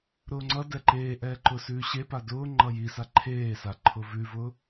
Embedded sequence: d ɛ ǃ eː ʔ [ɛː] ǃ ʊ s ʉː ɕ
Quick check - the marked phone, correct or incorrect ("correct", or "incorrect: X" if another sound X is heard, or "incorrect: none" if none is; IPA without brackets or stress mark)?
correct